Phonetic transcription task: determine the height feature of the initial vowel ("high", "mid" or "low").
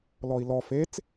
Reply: mid